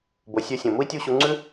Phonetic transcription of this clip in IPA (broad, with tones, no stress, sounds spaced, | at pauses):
b o˨ sʲ ø˧ sʲ õ˨ m u˦ i̯ tʲ u˦˨ ɕ u˧ ŋ͡ǀ ʉ˦